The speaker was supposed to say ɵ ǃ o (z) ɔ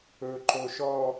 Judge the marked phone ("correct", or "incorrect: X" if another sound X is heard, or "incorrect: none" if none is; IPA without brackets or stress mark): incorrect: ʃ